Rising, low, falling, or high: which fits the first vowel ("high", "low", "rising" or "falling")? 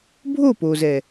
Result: falling